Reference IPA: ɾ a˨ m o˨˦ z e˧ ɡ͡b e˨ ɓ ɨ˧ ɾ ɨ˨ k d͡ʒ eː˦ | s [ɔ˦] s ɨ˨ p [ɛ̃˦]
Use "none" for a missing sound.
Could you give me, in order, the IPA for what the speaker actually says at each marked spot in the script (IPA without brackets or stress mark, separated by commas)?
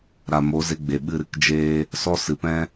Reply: ɔ˦, ɛ̃˦